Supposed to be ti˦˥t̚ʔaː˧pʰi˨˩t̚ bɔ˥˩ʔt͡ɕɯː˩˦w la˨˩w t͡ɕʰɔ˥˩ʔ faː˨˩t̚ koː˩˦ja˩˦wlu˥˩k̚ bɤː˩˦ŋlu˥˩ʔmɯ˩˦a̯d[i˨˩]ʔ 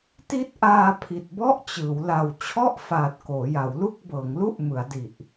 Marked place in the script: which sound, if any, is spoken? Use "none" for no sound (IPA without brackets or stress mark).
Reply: i˨˩